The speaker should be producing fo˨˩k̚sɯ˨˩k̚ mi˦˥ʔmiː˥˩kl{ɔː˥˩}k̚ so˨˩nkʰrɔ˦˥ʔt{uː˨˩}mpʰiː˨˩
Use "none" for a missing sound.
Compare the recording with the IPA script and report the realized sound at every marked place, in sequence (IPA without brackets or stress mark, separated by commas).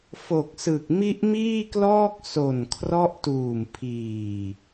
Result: ɔː˥˩, uː˨˩